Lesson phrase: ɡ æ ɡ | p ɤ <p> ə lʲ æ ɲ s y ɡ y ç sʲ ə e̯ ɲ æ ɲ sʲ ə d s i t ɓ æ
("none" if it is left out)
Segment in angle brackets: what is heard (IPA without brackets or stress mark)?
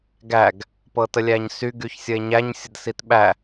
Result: t